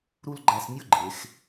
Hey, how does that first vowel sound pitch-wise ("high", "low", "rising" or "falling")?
high